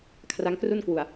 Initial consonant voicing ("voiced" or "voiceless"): voiceless